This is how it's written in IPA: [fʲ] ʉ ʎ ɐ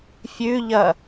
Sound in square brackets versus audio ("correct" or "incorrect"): correct